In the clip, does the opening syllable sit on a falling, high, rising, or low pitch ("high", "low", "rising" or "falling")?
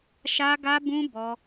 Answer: high